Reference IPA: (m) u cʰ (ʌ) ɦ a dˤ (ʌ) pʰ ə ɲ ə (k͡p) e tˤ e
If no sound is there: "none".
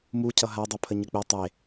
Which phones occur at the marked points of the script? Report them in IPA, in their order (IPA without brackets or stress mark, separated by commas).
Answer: m, ʌ, ʌ, k͡p